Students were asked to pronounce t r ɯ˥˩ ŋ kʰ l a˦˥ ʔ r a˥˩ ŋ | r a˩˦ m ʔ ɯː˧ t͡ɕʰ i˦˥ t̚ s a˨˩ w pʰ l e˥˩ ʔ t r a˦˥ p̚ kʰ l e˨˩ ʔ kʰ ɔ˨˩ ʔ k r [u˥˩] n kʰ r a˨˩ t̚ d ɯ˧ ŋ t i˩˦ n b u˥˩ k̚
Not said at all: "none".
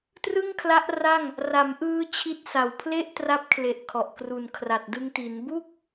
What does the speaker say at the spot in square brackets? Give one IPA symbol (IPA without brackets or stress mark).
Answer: u˨˩